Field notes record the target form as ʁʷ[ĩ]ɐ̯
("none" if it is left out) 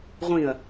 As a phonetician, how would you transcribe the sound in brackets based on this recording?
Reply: ĩ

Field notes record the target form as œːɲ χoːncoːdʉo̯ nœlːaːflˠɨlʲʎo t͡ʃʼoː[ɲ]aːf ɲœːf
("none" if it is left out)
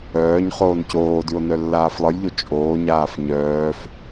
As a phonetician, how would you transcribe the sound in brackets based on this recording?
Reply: ɲ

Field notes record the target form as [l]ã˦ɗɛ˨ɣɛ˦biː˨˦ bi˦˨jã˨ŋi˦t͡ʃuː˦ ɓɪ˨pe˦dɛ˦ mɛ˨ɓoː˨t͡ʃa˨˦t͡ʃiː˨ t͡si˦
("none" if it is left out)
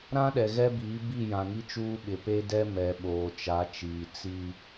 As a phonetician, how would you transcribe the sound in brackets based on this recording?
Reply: ɾ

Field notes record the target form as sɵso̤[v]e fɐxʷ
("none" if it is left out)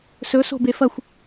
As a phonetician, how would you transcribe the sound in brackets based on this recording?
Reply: b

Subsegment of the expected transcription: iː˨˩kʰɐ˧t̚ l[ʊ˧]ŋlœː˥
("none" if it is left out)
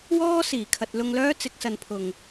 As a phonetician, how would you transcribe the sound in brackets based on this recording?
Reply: ʊ˧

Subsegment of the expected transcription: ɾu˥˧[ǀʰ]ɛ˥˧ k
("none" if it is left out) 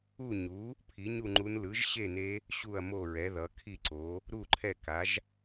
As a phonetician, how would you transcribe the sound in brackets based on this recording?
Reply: ǃʰ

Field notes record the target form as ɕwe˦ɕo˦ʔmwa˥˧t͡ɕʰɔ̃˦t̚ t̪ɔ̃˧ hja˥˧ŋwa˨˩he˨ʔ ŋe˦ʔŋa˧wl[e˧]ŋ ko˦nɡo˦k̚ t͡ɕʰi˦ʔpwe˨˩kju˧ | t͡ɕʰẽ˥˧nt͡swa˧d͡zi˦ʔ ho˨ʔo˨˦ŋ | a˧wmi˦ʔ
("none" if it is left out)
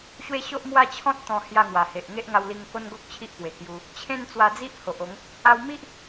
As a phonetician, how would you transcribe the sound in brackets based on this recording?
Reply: i˧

